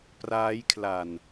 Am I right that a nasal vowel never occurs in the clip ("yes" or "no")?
yes